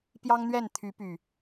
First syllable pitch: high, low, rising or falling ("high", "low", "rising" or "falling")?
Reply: high